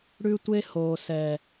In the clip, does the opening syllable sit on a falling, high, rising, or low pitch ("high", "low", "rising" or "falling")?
high